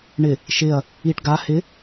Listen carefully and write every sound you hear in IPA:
ɳɪ | ʃɪɐ̯ | iʈ ɡa hɪ

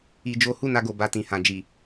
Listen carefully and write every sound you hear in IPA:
i˧d͡ʒo˦ hu˦˨na˧ɡo˨ ba˧tĩ˨hã˨d͡ʒi˨

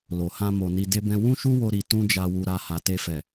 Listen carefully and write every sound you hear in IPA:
lo˨hã˧ mo˨ni˧ de˧bɛ̃˧ wũ˦ʃu˦wo˧ ɾi˧ tũ˦d͡ʒa˧wu˧ ɾa˧ha˨te˧fɛ˨

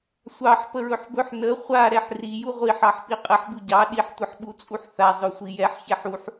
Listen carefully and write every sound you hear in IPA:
sʷɑħ pəɹɵħbɵħ nə χʷa ɾɛħri juʁʷiħ ɑħpiqʼəħ buɟɑ ɗiħ tʷəħɓut͡sʼuħθa zˤɵsʷijɛħ çɛħuħ

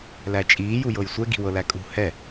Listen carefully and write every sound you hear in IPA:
læt͡ʃʼiː jujɤjsʷɛ ɡi̤wɤlækʼṳ hɛ

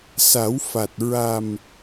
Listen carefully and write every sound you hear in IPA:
sa˨˩˦w fa˨˩t̚ ɹa˨˩m

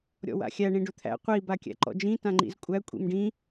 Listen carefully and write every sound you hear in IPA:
ɾʲɔ̰wa̰xʲæ ɳĩɖɵt̪ʰæ̰ qʷi bakʲæ̰ǃɔ̰d͡ʒĩ tãŋ͡ǃḭzkʷʼæ kʷʼḭmɖĩ

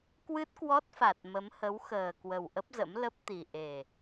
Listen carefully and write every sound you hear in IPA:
kwɨ˦˥t̚kwɔ˦˥t̚fa˨˩t̚ mə˨˦mhə˨˦wxəː˨˩kwə˨˩w ʔə˦˥p̚zə̰˧˥m lə˦˥p̚t̪i˨˩ ʔe˨˩

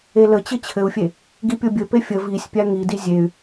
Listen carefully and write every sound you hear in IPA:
elət͡ɕɘ t͡ɕʰɘu̯fʲe | ɡipʲobʲɘpe fʲə visʲpʲa ŋidi zʲey̯

